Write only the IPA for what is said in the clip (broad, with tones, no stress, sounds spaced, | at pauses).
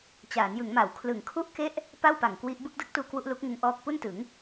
t͡ɕ aː˩˦ n j ɯ˩˦ ŋ m a˩˦ w kʰ l ɯ˩˦ ŋ kʰ u˥˩ ʔ k e˥˩ ʔ | p a˥˩ w p a˨˩ ŋ k w i˦˥ ʔ b ɯ˥˩ k̚ d ɯ˥˩ k̚ t uː˦˥ k w u˦˥ ʔ l u˦˥ k̚ ŋ ɯ˧ ŋ ʔ ɔː˥˩ k̚ p u˥˩ n t ɯ˩˦ ŋ